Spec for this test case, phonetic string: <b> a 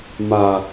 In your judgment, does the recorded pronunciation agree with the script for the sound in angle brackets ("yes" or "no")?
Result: no